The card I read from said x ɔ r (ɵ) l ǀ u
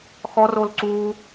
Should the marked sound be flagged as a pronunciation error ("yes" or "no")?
yes